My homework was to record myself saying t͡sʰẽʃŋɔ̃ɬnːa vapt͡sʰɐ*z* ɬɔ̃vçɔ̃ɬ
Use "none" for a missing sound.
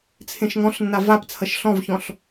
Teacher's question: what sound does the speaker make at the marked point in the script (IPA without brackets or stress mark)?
ʃ